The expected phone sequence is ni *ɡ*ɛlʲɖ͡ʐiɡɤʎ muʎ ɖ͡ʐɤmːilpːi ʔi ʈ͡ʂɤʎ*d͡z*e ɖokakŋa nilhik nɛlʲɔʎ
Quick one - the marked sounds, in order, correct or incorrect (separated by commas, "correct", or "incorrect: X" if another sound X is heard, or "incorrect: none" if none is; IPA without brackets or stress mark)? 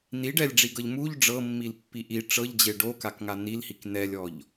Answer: incorrect: ɖ, incorrect: d͡ʑ